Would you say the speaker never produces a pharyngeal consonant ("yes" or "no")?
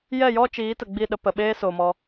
yes